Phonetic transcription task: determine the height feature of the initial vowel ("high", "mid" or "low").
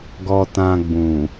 mid